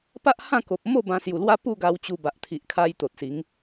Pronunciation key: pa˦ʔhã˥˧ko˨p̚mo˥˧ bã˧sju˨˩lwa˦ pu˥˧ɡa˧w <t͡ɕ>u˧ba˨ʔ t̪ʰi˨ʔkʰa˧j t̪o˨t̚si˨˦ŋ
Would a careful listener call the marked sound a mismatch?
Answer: no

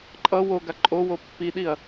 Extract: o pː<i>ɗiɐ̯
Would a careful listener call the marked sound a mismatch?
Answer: no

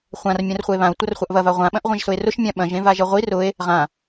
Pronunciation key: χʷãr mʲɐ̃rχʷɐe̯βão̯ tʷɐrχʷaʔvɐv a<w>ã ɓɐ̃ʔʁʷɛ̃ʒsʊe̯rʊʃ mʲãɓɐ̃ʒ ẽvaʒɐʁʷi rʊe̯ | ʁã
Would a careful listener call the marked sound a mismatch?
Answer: yes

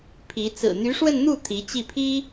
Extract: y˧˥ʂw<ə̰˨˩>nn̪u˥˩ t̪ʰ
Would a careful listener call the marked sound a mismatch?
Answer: yes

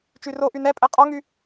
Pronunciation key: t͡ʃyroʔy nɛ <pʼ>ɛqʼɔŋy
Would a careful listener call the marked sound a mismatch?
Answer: no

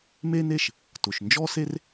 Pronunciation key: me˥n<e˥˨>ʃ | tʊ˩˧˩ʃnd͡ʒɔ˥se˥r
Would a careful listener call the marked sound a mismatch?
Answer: no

